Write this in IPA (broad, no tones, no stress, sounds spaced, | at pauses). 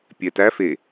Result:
pʲ ɛ t æ f e